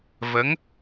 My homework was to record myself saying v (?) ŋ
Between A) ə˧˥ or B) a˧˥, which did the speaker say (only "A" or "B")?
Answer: A